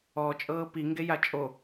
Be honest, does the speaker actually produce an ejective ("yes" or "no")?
yes